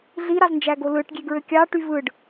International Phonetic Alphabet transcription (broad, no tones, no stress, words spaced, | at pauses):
ɮiɾɑznd͡ʒæɡo lɯʈɡʲeɡɹø kʲɑʈy vɯɖ